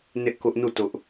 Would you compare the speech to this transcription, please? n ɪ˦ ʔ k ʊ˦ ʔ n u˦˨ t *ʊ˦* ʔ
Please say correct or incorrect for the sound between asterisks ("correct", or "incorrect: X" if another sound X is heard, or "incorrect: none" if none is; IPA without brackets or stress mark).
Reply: correct